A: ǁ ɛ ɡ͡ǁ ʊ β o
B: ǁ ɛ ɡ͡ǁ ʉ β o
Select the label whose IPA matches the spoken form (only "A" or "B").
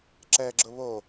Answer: A